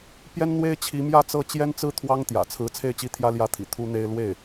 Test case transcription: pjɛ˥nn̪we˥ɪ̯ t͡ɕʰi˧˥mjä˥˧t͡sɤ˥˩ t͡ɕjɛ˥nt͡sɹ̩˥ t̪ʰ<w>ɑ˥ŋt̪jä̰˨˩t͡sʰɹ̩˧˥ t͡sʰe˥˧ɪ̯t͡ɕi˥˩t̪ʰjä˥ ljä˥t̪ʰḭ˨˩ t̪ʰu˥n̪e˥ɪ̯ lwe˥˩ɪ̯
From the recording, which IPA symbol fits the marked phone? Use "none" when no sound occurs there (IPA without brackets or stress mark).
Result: w